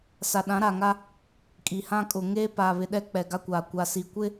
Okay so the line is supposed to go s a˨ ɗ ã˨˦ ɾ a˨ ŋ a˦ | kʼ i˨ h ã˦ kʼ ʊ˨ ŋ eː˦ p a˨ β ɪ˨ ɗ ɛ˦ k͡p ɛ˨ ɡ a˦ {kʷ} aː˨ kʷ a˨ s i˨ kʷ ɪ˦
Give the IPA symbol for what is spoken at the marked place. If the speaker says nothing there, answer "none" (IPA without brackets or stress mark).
kʷ